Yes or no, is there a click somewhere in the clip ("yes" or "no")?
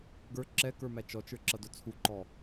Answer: yes